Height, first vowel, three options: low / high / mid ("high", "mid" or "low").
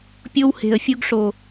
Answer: mid